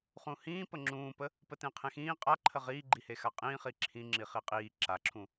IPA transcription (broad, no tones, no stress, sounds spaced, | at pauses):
χ ũ h ĩː p ə ŋ͡ǁ ũː p ə | p ə t ẽ qʰ ẽ x ĩː qʼ a ǃʰ ə ʁ iː ɡ͡ǃ i h e x a qʼ ĩː χ i ǁʰ ĩ ŋ͡ǁ i χ i qʼ iː ǁ a ǁʰ ũ